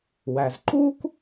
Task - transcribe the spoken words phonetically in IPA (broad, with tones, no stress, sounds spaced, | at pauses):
w æ˩ z ǃ uː˥ k